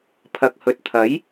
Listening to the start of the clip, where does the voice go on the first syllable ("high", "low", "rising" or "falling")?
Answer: low